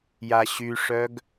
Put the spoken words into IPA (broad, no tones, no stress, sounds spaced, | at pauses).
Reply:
j a ɕ y ʂ œ ɡ